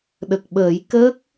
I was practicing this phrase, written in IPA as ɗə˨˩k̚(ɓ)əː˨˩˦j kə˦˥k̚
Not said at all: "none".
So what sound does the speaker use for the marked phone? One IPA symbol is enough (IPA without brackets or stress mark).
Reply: ɓ